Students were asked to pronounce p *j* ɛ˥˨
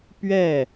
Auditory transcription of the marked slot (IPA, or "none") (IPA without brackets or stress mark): ɥ